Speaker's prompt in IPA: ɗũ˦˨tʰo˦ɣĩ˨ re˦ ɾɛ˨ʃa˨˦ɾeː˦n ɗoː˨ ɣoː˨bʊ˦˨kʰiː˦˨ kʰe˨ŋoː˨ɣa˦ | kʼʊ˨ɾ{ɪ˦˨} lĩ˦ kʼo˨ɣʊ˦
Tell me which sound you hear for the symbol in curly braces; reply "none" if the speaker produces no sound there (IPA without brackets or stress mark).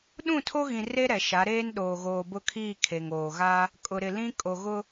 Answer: ɪ˨